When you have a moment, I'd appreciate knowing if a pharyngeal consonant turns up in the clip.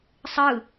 no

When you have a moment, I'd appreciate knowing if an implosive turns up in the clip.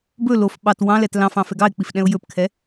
yes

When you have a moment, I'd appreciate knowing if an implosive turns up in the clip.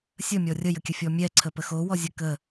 no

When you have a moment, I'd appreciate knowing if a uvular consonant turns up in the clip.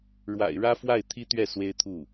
no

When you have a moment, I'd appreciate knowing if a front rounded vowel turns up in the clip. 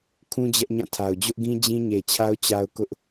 no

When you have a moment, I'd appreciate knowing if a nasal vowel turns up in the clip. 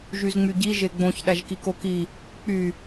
yes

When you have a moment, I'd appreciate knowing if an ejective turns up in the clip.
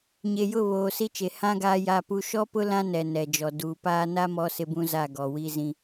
no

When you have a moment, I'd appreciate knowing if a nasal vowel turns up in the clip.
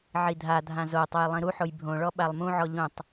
yes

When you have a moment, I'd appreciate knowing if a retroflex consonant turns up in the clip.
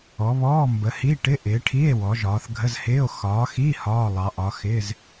yes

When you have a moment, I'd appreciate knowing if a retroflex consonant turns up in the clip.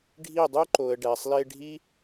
yes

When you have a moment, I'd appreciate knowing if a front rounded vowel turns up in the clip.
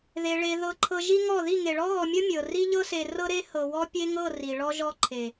no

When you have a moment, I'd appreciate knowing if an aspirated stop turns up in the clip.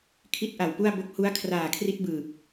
yes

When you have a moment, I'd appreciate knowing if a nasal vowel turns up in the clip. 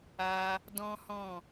yes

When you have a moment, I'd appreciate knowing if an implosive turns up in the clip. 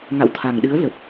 yes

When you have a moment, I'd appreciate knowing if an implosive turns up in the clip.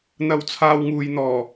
no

